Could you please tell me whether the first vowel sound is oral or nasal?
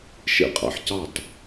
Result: oral